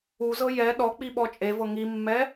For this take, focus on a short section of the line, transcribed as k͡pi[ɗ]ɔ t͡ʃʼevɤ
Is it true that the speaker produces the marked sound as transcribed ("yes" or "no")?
no